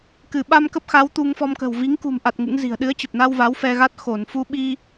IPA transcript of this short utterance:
k ɨ˧˩ ɓ a˧ m k ə˦˥ p̚ x a˨˦ w t̪ u˧ ŋ f ɔ˧ m k ə̤˨˩ w v i˨˦ ŋ k ṳ˨˩ m ʔ a˨˩ t̚ ŋ ɨ̰˧˥ ŋ z i̤˨˩ ə̯ ɗ ɨ˨˦ ə̯ t͡ɕ ə˨˩ p̚ n a˧ w v a˨˦ w f ɛ˧ ɣ a˦˥ t̚ x o˧˩ n f u˧ ɓ i˧

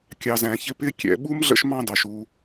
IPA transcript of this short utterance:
kʲ ɑ˨ z æ̃˩ ç ɪ˦ p ɪ˥ kʲ ɛ̰˨ ɓ u˥ m ɮ ə̰˦ ʃ m ɑ̃˦ d ɑ˩ ʃ u˨

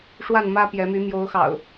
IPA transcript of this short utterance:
ʂ w a˥˨ n m ä˦ p j ɛ˨˦ m y˨˦ m j o˨˦ ʊ̯ x ɑ̰˨˩ ʊ̯

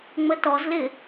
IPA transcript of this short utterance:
ŋ͡m ə t ɔ z l ɪ

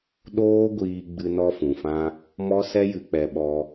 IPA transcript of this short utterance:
ɗ oː˦ ɡʷ iː˧ ɡ͡b ɨ˧ n ɔ˧ f ũ˨ f ã˧ | m ɔ˦ s ɛ˦ j ɨ˧ k͡p ɛ˧ ɓ ɔ˧

